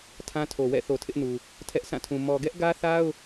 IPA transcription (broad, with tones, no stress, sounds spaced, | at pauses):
tʰ ã˦ tʰ o˨ w ɛ̰˦˨ θ o˨ tʰ ɪ˦ ʔ n u˨ | tʰ ɛ˦ ʔ sʰ ã˦˨ tʰ ũ˨ m ɔ˨ ɡ ɛ˦ ʔ ɡ ä˦ θ a˦ ʊ̯